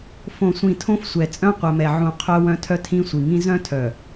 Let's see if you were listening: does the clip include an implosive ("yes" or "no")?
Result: no